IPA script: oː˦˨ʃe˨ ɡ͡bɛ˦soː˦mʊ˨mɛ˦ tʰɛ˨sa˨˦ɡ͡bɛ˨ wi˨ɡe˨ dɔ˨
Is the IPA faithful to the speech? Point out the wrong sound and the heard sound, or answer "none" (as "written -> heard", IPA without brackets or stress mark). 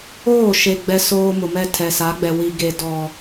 none